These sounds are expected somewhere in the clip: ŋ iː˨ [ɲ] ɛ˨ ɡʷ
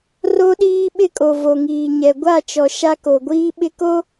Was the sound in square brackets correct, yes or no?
yes